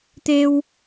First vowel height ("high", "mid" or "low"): mid